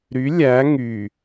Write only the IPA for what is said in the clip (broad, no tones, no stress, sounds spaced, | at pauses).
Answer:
ɾ y lʲ æ ŋ y